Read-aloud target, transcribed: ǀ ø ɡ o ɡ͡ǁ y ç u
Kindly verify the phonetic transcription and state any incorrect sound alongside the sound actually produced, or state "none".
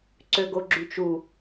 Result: ç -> t͡ʃ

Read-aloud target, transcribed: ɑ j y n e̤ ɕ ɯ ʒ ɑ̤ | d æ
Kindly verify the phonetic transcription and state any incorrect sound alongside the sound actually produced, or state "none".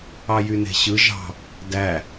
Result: none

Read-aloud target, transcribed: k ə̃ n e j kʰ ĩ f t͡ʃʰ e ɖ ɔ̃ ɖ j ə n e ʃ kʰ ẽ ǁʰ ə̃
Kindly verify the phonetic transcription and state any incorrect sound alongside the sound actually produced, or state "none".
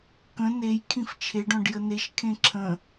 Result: none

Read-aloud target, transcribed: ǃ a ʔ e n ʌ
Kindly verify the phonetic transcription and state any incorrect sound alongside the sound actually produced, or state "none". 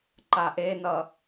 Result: none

